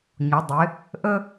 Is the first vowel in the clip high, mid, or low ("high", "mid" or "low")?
high